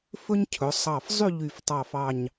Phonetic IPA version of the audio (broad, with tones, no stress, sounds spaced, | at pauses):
f ɵ˥ ɲ cʰ ɵ˩˧ sˤ ɑ˧˩ f zˤ y˥˧ ʎ y˧˩ f tˤ ɑ˧˩ f ɑ˧˩ ɲ